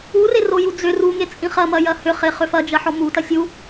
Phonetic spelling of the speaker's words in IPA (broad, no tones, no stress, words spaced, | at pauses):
ureroju d͡zʏ ruŋet͡sʼĩ χɐmɐjɐ hʏχeχʏ fɐd͡ʒɐħɔ mutɐ sʲu